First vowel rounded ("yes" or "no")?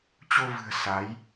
yes